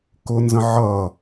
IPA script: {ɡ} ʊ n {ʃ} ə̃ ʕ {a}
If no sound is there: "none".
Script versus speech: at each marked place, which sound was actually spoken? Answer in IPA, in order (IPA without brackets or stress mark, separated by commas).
k, z, ʌ